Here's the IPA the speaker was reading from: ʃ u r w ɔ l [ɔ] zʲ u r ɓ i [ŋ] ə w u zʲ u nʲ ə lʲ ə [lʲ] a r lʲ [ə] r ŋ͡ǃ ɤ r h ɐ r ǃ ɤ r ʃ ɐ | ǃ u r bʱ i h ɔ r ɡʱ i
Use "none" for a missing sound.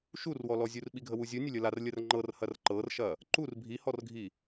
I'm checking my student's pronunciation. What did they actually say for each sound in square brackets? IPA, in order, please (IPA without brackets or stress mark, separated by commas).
ɔ, ɡʱ, l, ə